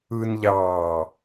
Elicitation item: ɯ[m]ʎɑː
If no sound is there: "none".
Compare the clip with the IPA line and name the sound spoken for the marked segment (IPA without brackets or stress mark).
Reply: n